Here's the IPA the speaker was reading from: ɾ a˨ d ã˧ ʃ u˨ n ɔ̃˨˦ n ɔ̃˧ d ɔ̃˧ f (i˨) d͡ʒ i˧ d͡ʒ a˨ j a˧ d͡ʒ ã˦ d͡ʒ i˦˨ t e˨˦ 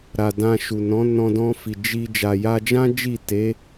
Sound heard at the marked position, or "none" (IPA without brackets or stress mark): i˨